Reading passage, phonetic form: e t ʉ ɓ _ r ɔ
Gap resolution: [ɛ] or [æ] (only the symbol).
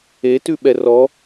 ɛ